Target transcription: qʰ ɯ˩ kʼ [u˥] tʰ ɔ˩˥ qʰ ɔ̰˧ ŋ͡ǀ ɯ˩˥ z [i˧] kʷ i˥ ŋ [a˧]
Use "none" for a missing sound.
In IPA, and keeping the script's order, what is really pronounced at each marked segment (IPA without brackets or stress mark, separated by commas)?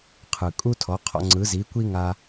u˥, i˩˥, a˧